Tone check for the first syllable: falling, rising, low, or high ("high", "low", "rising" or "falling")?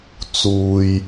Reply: low